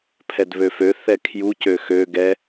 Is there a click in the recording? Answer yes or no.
no